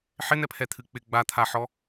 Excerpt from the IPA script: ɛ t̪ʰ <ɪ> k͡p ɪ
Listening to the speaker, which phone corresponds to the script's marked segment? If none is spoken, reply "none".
ɨ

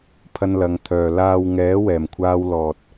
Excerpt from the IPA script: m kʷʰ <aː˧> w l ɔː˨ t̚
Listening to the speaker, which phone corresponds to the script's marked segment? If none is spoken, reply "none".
aː˧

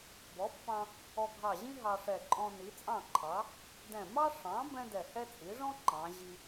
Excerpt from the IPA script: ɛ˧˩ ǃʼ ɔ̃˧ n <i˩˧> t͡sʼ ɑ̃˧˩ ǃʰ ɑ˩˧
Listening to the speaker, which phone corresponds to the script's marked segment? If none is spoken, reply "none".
i˩˧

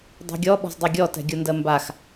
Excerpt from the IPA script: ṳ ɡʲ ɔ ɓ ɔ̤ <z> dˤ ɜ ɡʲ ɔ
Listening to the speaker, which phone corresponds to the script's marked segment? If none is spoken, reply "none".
z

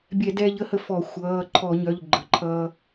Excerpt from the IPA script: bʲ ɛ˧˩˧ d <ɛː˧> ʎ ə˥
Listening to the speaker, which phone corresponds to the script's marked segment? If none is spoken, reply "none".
ɛː˧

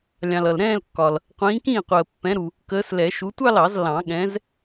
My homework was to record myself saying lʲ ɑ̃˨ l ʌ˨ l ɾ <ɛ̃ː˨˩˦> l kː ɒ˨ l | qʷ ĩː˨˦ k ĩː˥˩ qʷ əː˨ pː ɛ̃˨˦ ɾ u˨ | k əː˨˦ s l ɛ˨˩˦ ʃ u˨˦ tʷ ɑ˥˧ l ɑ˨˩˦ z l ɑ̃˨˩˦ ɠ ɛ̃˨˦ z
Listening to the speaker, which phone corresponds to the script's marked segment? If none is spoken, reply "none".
ɛ̃ː˥˧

